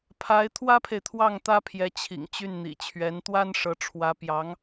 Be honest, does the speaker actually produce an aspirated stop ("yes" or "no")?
yes